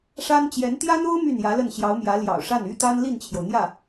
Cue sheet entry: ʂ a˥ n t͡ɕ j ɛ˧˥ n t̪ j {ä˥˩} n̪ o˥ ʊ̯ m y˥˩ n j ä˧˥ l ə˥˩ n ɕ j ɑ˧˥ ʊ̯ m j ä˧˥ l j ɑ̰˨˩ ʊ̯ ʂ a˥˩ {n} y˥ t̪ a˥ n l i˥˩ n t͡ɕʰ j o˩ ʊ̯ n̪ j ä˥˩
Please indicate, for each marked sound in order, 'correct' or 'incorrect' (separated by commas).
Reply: incorrect, correct